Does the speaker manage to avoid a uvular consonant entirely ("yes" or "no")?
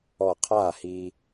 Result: no